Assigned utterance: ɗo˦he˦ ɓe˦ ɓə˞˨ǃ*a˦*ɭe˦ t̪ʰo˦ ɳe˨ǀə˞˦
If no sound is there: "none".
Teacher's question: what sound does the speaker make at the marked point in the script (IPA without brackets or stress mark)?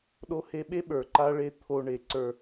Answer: a˦